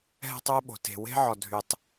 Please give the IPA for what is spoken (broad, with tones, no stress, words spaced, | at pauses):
ɦɛ̤˦tˤwə˦ɓo̤˨ te̤˨we̤˦ ʕɔ˨dʱy˨tˤ